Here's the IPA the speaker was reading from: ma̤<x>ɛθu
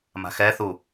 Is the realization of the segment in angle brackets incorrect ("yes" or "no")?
no